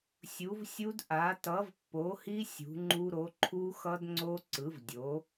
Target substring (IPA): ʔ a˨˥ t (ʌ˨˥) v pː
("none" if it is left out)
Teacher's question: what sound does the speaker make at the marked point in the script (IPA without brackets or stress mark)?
ʌ˨˥